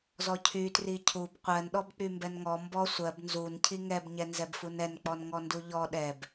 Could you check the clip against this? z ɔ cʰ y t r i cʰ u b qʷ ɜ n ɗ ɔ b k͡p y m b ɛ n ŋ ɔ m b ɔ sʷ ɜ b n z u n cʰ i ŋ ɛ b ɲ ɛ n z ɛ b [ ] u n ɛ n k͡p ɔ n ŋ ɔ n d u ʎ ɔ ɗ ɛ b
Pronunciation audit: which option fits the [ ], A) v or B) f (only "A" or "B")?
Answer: B